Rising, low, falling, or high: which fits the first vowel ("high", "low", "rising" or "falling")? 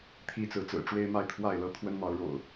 high